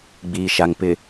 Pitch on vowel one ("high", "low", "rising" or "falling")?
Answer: low